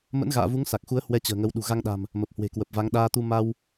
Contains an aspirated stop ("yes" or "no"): no